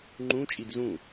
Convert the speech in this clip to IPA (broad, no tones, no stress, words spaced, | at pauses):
ŋ͡ǃũ t͡ʃʼidzũ